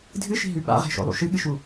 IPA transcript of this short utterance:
dʱ ɨ ʃ i̤ ɦ ʉ ɓ a̰ ʁ e̤ ʃ o̰ lˠ ṵ ʃ ɨ ɠ ɨ ʃ u

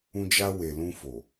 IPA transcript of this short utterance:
ũ˧ d͡ʒ a˧ w e˨ l ũ˧ f o˨

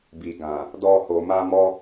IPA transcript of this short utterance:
b i˨ ɡ ã˨ | d ɔ˧ h o˨ m a˧ m ɔ˧

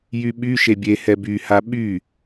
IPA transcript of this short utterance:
j y ɓ y ʃ e bʲ e h ɛ b y h a ɓ y

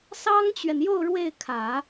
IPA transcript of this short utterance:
s ɑ˥ ŋ t͡ɕ ɥ ɛ˨ n j o˥˧ ʊ̯ ɻ w e˥˩ ɪ̯ kʰ ä˨˩˦

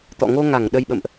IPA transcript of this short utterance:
t̪ ɔ̰˧˨ ŋ o˧ ŋ a˧˩ ŋ ɗ ə˧ j ɓ ə̰˧˨ m ʔ

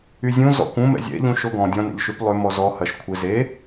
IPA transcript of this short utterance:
y zʲ ũ z ɔ̰ kʷ ũ m ɛ̰ zʲ ɛ̰ ʎ ũ ʃ o ɡ ɔ̃ dʲ ɔ̃ n ɛ̰ ʎ ʃ y p lˠ ʏ m ɔ z ɔ h ɐ ʃ kʷʰ ɪ z e

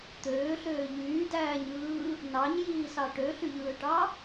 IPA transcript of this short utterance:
t̪ øː ɬ øː ʎ yː d æː ɲ ɯː | n ɑ ɲ j iː s ɑ ʈ ø ɬ y ʎ ɯː ʈ ɑ

